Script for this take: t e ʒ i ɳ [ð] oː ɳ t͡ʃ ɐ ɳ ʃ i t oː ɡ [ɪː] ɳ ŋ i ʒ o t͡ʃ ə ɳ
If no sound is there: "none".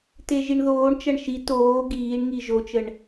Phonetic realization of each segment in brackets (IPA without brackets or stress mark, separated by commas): ð, iː